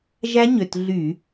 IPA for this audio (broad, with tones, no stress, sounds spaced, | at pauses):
ʒ æ˦˥ ɲ ø˩˧˩ t ɮ y˧˩˧